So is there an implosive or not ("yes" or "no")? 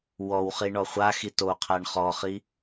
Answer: no